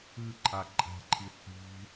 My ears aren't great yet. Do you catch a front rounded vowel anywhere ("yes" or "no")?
no